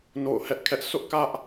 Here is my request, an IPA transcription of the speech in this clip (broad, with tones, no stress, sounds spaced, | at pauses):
n o̰˦˨ ʊ̯ h ɛ˦ ʔ kʰ ɛ˦ ʔ s ʊ˦ ʔ k ä˦ ʔ